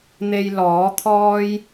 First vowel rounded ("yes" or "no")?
no